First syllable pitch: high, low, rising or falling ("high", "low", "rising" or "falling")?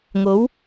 rising